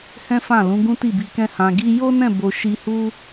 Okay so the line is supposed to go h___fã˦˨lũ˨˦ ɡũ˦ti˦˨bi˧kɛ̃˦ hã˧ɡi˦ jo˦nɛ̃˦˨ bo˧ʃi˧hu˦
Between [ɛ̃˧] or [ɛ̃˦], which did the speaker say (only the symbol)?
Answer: ɛ̃˦